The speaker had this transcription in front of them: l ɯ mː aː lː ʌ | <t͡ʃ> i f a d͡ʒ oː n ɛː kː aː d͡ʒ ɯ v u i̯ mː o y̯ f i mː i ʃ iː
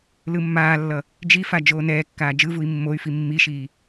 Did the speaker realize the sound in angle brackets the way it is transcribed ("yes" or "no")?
no